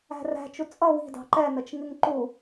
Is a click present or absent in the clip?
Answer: present